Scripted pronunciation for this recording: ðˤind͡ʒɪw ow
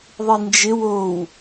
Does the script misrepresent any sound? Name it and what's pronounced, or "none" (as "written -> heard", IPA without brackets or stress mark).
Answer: none